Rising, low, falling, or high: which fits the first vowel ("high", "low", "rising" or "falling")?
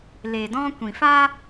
low